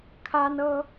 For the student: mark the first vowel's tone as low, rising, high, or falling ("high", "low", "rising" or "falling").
high